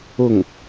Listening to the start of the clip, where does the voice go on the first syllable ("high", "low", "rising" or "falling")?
falling